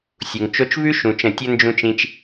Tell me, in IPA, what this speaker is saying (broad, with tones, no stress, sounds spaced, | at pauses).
sʲ u˨ ŋ t͡ʃ o˧ t͡ʃ v ʉ˦ ʃ ũ˧ t͡ʃ ə̃˦˨ tʲ ə˧ n d͡ʒ ũ˧ t͡ʃ ĩ˧ t͡ʃ